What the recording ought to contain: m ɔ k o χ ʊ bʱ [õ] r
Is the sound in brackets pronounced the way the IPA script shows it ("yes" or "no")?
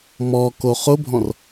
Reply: no